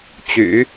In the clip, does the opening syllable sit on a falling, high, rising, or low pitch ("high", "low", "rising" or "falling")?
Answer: low